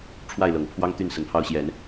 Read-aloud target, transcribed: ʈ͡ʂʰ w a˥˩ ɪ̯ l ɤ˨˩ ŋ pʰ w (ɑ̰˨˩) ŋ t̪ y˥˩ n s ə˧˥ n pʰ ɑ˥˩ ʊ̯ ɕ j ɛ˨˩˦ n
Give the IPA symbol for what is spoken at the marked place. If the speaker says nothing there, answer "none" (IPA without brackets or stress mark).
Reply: ɑ˥